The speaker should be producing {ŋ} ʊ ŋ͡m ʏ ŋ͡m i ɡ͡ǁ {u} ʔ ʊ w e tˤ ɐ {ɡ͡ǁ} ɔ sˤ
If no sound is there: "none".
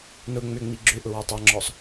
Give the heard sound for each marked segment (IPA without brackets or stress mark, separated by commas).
n, ʏ, ŋ͡ǁ